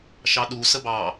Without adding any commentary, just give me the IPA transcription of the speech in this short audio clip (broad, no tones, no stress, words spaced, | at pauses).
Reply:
ʃɑɗu səbɑ